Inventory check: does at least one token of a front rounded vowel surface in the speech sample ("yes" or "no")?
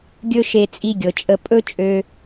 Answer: yes